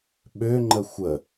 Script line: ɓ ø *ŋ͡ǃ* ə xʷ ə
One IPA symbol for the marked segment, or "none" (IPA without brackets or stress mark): ŋ͡ǃ